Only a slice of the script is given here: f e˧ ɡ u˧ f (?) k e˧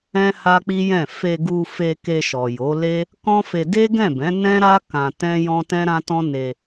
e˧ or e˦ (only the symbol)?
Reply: e˧